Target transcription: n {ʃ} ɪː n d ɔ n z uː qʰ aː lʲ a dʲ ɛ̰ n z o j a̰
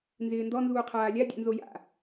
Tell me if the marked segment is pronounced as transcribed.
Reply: no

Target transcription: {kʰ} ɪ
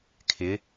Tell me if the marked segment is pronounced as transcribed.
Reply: yes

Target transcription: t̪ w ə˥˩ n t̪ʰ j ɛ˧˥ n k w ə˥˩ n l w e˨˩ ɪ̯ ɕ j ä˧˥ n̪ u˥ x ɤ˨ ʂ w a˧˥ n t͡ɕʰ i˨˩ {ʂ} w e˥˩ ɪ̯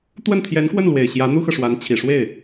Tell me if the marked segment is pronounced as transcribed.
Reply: yes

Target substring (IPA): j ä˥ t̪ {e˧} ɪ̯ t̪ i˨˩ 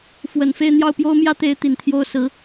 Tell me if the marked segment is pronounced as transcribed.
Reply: no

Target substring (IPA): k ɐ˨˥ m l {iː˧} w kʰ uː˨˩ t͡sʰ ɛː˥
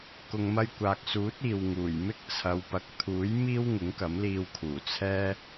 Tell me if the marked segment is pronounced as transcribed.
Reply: yes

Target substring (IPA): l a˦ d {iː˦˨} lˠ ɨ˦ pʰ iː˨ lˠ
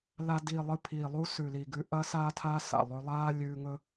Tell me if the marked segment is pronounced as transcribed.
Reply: yes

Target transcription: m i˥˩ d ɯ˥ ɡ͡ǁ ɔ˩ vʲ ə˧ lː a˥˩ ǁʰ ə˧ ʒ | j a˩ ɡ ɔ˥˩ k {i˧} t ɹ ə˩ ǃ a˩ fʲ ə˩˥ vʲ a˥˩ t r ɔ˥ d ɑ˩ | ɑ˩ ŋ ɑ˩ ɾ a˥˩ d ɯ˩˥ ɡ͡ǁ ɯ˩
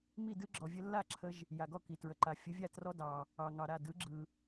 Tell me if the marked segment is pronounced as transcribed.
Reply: no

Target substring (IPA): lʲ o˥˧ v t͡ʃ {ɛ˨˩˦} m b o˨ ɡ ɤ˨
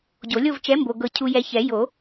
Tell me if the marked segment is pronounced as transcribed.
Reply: no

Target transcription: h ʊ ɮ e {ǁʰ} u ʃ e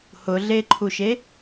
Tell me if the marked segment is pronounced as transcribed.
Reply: no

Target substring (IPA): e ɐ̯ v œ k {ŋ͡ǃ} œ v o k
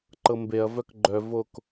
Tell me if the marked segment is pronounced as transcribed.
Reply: no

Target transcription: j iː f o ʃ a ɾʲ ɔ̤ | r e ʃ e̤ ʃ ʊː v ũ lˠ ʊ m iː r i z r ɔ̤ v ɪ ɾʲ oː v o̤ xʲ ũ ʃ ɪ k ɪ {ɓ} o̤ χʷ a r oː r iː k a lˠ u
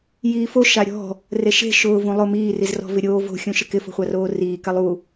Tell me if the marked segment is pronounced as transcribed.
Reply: no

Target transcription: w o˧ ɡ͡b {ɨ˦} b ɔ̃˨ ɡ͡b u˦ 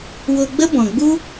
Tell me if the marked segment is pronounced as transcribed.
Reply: no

